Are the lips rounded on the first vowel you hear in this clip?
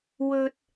yes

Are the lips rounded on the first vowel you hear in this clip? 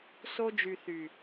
yes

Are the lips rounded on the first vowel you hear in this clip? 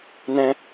no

